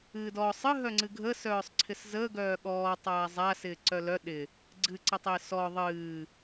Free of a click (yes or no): no